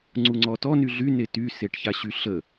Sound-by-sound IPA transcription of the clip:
ŋ͡ǀ u ŋ͡ǀ ɔ t ɔ n y ɮ y n e t y s e ʈ ç a ɕ y ɬ ə

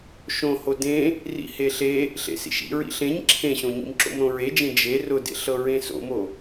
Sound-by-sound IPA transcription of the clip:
ʃ õ h o d ẽ | r ḭ h e ɬ e | ɬ ḛ s ḭ ʃ ḭ ɹ ḭ ɬ ẽ ɲ ǁʰ ẽ ɕ õ ɲ ḭ m ǁ o̰ m ɾ õ ɹ e d͡ʒ ẽ d͡ʒ e r ʊ d ḛ ɬ ɤ ɹ ẽ s o̰ m o

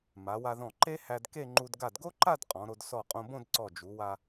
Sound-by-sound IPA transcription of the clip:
m a˩˧ w a˧ ð ɔ̃˧˩ ǃ e˥ h æ˧ d k e˥˧ ŋ͡ǃ u˧ d ɡ a˧˩ d ɡ o˥ ǃ a˥˧ d qʼ ɔ̃˩˧ ɾ o˧ d s ɔ˧˩ qʼ õ˧ b õ˥˧ d ǀ ɔ˧˩ d͡ʒ u˩˧ w a˧

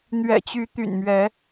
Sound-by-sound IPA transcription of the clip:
n̪ ɥ ɛ̰˨˩ t͡ɕ y˨˦ t̪ y̰˨˩ n m ɥ ɛ˨˦

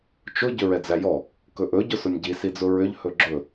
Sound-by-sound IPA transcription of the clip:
t͡ʃ ʊ ɟ ʏ ɹ ɛ d͡z æ j ɔ | k ɵ ʔ ɵ ɟ ʊ s ʊ nʲ ɟ i s i d͡z ʊ ɹ ʏ ʎ h ɵ ɡ͡ǁ ɵ

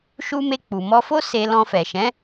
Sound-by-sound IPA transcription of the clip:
ʃ u˧ m e˧ k͡p u˨ m ɔ˧ f o˦ s e˧ l ɔ̃˧ f ɛ˨ ʃ ɛ̃˨˦

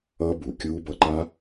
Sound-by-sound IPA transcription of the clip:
ʌː˦˥ b uː˩ kʲ uː˦˥ b ʌ˧ ǃ a˦˥

